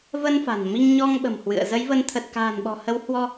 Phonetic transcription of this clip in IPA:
v ə˧ n f a̤˨˩ n m i˧ ŋ ɲ ɔ˧ ŋ ɓ ə̤˨˩ m h w ɨ̰˧˨ ə̯ z ə˨˦ j v ə˨˦ n t̪ʰ ə˨˩ t̚ k a̤ː˨˩ n ɓ ɔ̤˨˩ h ə˨˦ w h w ɔ˧

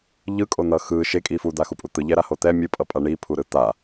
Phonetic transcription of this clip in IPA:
ʎ ɯ kʼ o n̪ ʌ x ɯ ʃ e kʼ i f u d̪ a x u pʼ u t̪ ɯ ʎ ɛ ɾ a h o t̪ ɛ mʲ ɯ pʼ ʌ pʼ a ɳ i pʰ u ɾ ɯ t̪ a

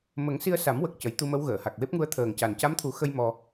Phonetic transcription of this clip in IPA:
m ə˨˩˦ ŋ s i˧ ə̯ s a˨˩˦ m w ə˨˩ k̚ c ə˨˩˦ j t̪ u˧ m ə˧˥ w ɣ əː˨˩˨ h a˨˩ k̚ w e˦˥ p̚ ŋ u˧˥ ə̯ t̪ʰ əː˨˩ ŋ c a˨˩ n c a˧˥ m t̪ʰ u˨˩˦ x ə˧ j m ɔ˧

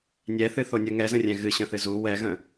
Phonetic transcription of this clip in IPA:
nʲ ɛ θ ɨ θ o nʲ ə ŋ ɛ z ə̃ rʲ ɛ̃ ɣ ɨ ɕ ə̃ θ ɨ z u w ɛ ɣ ə̃

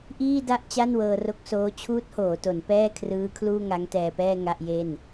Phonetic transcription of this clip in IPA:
ʔ iː˥˩ d a˥˩ ʔ t͡ɕ a˥˩ n w ɤː˧ r o˦˥ k̚ s oː˦˥ t͡ɕʰ uː˦˥ t̚ h oː˩˦ t o˩˦ n p ɛː˥˩ kʰ r ɯː˦˥ kʰ l uː˥˩ ŋ a˦˥ ŋ t ɛː˧ p ɛː˥˩ ŋ a˥˩ ʔ j e˥˩ n

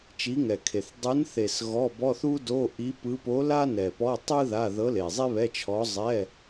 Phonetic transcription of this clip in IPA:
t͡ʃ i˧˥ ŋ ɛ˨ kʰ e˨ θ dˤ ɯ˧˥ n θ e˨ s ɣ ɔ˧˥˧ b ɔ˧˥˧ θ u˥ d o˧˥˧ ʔ i˧˥ p ɯ˧˥ p o˧˥ l a˥ n ɛ˨ p ɔ˧˥˧ tˤ ɯ˥ ð a˧˥˧ ð ɤ˧˥ l e˨ zˤ e˥ β ɛ˧˥˧ t͡ʃʰ ɔ˧˥ zˤ ɛ˧˥˧

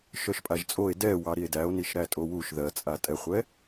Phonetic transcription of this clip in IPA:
ʃ œ ʃ pʼ a ʒ t͡sʼ o e̯ d ɛ w ɑ ɾ i e̯ d æ o̯ n i ʃ ɾ æ tʼ o w u ʃ ð ɜ t͡sʼ a tʼ ɛ χʷ ɛ

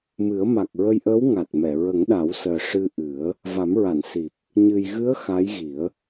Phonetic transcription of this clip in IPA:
m ɨ˨˩˦ ə̯ m a˨˩ k̚ ɹ ə˧ j ʔ əː˧˥ w ŋ a˨˩ t̚ m ɛ˨˩˨ ɹ ə˨˩˦ ŋ ɗ a˨˩˦ w s əː˨˩ ʂ ɨ˧ ʔ ɨ˨˩˦ ə̯ | v a˨˩˦ m ɹ a˨˩˨ n s i˨˩ p̚ | ɲ ɨ˨˩ j ɣ ɨ˧˥ ə̯ x a˧˥ j ɣ i˨˩˦ ə̯

